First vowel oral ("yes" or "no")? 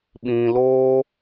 no